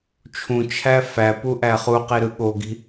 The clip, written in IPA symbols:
t͡ʃʰ ũ t͡ʃʰ æ f æ p u ʔ æ χ u q i ɾ ɯ ɠ o ɡ i̤

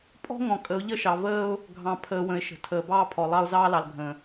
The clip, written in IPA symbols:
pʼ ɔ̤˦ ŋ ɔ̃˨ kʼ ə˨˦ ʊ̯ ʎ ə˦ ʃ ɑ˨ v əː˦ ʊ̯ | ɡʱ ɑ̃˨ pʰ əː˨ w ə̃˨ ɪ̯ ʃ ə̤˨ tʰ əː˨ b ɑː˦ pʰ ɔ˨ lˠ ɑ˦ ʊ̯ z ɑː˦ l ɑ˨ l ɡʱ ə̃˨

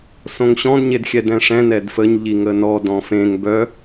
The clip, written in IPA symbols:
s õ ŋ ɕ ɔ̃ d ɲ e d xʲ ɛ d ɛ̃ ʂ ɛ̃ n ɛ d f ə ɲ ʎ i ŋ ə n ɔ d ɔ̃ f ẽ ŋ b œ

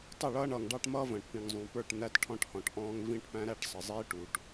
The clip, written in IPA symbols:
tˤ ʌ˦˨ ɭ ʌː˦ ɳ ʌː˨ ŋ ɖ ɑ˦ ʈ m ʌː˦ v ə̃ː˨ ʈ p ĩ˨ ŋ zˤ ũ˨ p ə˞˦˨ ʈ n̪ æ˦ t ʈʰ ɔ̃˦ ʈ h ɔ̃˨ ʈ ʔ ɔ̃ː˦ ŋ v ĩ˦ ʈ p æ̃˦ ɾ æ˦ ʈ sˤ ə˨ zˤ iː˦ ʈ u˨ ʈ

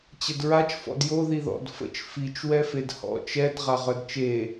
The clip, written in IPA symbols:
t͡ɕ ə d ɹ a t͡ʃ f ɔ̰ d j o ð i ð ɔ̰ d f ə̰ t͡ʃ f i t͡ʃ w ɛ f e d h ɔ̰ t͡ʃ ɛ d ʁ a ʁ œ d t͡ʃ e

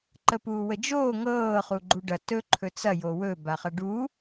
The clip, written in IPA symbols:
ǃ ə p uː w ə d͡ʒ oː ŋ ɤː χ u ɡ͡ǃ u ɖ ɐ t ɵ ǃʰ ɵ t͡s ɐ j o w ɵ b a χ ɐ ɖ u

